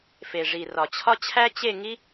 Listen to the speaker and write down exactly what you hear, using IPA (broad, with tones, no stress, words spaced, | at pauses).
fe˨ʐi˨rɒ˨t͡ɕʰɒ˦ t͡ɕʰæ˦t͡ɕe˦˨ŋi˦